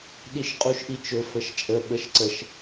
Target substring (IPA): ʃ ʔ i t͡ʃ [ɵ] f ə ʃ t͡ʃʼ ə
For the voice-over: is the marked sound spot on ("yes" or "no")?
yes